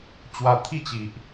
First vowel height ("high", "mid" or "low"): low